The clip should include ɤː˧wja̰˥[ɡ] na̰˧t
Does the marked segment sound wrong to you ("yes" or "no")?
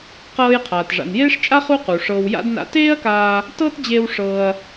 yes